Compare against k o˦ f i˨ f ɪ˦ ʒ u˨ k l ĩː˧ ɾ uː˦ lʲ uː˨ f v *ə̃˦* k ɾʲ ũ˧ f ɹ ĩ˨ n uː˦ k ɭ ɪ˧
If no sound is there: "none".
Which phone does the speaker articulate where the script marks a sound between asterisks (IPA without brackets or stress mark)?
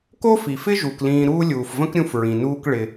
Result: ə̃˦